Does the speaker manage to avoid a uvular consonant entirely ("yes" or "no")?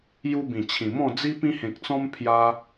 yes